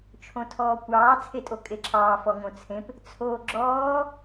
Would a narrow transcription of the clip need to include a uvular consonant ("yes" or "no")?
no